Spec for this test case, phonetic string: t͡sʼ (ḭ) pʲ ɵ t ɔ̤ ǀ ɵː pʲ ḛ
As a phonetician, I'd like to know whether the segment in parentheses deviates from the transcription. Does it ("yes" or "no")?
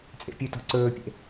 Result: yes